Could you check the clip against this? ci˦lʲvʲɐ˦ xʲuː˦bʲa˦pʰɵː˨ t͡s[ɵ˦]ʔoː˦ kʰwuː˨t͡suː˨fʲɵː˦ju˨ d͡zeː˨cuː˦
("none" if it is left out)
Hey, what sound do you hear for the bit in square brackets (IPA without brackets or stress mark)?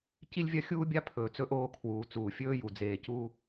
ɵ˦